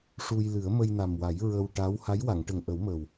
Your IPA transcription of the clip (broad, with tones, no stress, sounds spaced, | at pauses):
ʂ u˧ j l ɨ˨˩˦ ə̯ m ə˧ j n a˨˩ m w a˨˩˦ j ɹ ə˧ w ʈ a˧˥ w h a˧˥ j w a˨˩˨ ŋ ʈ ə˨˩ ŋ ʔ ə˨˩˦ w m ə˨˩ w